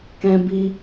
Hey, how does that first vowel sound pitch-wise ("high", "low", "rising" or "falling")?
high